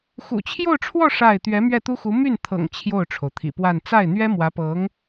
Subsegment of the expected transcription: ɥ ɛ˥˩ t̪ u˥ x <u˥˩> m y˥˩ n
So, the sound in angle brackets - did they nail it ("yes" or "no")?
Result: no